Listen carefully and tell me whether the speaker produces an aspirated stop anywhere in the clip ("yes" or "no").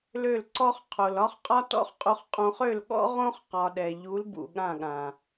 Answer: yes